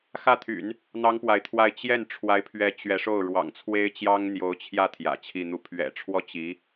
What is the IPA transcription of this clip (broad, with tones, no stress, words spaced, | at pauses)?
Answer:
xä˥˩t̪ʰy̰˨˩˦n | n̪ɑ˥ŋpwa˨ɪ̯t̪ʰwa˥˧ɪ̯ t͡ɕjɛ˥˩n ʈ͡ʂʰwa˧˥ɪ̯pʰɥɛ˧˥ t͡ɕɥɛ˧˥ʂo˥˩ʊ̯ ɻwɑ̰˨˩ŋt͡sʰwe˥ɪ̯ t͡ɕjɑ˥ŋn̪jo˧˥ʊ̯t͡ɕʰjä˥˩ t̪ʰjä̰˨˩t͡ɕʰi˥˧n̪u˥˩ pʰɥɛ̰˨˩ʈ͡ʂʰwɔ˥ t͡ɕi˧˥